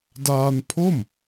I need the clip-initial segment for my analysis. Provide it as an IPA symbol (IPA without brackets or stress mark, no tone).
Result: d